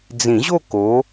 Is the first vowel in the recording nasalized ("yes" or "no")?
yes